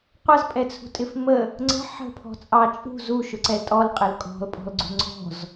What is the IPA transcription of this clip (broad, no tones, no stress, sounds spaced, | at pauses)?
qʷ ʌ z pʼ ɛ t͡sʰ ṳ tʼ ɪ f m ə | ŋ͡ǀ ə̤ ħ ə̤ pʰ ɔ̤ t͡sʼ ɑ t͡ʃʼ ṳ z u ʃ ʊ ǀ ɛ tʼ ɔ l qʼ ɪ l kʼ ɔ̤ l pʼ ɔ̤ l ɡ͡ǀ ṳ ŋ͡ǀ ɔ̤ z